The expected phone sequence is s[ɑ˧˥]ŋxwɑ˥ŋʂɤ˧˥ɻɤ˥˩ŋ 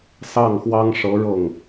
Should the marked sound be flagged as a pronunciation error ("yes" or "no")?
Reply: yes